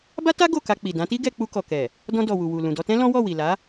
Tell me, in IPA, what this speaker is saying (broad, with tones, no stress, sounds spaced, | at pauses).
b a˦ t a˦ ɡ o˦˨ k a˧ k͡p i˨ d ã˨˦ t i˦ ɡ ɛ˧ k͡p u˧ k ɔ˨ k ɛ˨ | d ɔ̃˧ d ɔ˨ w u˨ w u˨ l ũ˨ d ɔ˧ t ɛ̃˦ l ɔ̃˦ w ɔ˦˨ w i˨ l a˨˦